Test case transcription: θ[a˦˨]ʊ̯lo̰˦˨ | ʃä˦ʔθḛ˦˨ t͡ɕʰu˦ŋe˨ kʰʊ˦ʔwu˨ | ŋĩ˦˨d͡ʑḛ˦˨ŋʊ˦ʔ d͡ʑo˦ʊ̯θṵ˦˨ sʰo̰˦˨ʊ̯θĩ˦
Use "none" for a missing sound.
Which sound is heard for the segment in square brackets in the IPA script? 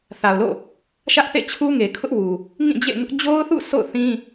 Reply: a˨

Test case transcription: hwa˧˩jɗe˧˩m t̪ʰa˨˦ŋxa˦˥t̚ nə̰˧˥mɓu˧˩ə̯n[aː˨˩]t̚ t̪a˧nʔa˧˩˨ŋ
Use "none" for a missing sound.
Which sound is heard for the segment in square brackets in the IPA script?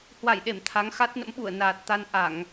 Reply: aː˨˩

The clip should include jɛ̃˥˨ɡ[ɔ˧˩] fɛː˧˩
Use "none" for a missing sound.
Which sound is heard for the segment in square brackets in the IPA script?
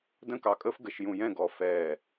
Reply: ɔ˧˩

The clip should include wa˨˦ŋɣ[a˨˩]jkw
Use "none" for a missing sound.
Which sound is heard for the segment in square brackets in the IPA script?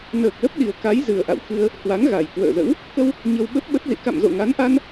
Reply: a˨˩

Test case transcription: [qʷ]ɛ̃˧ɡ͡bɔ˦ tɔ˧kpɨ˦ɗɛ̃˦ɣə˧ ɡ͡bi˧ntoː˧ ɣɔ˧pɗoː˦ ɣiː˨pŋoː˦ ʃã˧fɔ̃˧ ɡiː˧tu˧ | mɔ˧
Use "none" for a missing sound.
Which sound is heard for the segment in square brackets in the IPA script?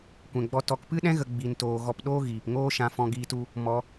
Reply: kʷ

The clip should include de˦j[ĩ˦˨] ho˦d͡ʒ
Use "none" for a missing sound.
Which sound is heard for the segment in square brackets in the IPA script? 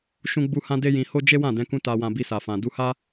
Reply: ĩ˧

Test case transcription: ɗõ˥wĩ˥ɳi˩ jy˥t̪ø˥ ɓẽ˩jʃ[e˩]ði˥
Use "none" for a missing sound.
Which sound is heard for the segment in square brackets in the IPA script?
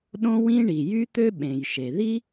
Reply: e˩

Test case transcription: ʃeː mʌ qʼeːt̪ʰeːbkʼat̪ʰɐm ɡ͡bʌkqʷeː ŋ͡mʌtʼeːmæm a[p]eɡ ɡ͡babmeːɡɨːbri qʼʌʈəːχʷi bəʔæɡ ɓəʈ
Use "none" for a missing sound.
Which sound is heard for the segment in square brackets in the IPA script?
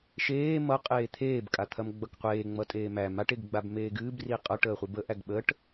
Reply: ʈ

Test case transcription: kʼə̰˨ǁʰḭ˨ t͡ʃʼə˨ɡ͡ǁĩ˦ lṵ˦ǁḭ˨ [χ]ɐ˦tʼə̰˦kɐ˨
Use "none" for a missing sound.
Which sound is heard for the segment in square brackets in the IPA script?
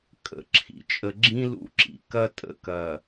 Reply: k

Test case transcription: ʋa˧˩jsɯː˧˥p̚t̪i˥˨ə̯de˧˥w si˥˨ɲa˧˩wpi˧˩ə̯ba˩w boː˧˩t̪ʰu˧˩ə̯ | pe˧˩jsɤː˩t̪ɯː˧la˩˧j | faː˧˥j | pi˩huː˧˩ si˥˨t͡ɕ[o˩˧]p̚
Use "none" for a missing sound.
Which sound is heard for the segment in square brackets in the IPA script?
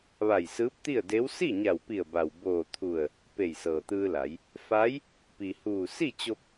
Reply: o˧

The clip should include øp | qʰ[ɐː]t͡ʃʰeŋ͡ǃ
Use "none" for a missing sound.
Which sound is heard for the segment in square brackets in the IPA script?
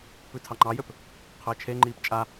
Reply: əː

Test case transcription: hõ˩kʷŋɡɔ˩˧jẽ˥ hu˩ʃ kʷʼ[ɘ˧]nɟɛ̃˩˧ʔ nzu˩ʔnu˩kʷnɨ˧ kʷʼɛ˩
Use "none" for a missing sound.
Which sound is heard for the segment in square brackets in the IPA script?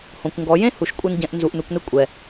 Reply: ɘ˧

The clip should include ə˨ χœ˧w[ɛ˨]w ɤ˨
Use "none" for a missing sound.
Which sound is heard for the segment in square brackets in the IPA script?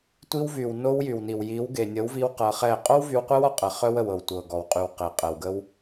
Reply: ə˨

